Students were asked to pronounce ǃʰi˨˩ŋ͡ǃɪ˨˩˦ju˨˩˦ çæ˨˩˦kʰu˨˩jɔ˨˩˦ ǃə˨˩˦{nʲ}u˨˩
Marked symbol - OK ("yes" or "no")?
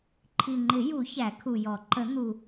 no